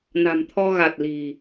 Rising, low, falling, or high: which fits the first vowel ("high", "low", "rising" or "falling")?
low